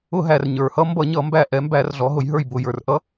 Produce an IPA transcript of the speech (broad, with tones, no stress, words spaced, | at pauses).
ʊ˧˩˧ ɦæ˩r ɲə˞˩hʌ˦ mbʌ˧˩˧ɲʌ˧˩˧mbæ˧˩ ʔɛ˩˧ mbæ˧˩˧rɮɔ˩˧ɦʊ˩˧jɦə˞˧˩j bʊ˧˩˧jə˞˩r ʔʌ˦